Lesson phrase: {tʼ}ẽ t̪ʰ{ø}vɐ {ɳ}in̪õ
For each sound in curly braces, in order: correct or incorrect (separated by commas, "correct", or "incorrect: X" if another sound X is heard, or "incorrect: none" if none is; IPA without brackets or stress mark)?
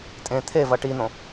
correct, incorrect: e, incorrect: ʈ